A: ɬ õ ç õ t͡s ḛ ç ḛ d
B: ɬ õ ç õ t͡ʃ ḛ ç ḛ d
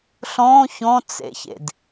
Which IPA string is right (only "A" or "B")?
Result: A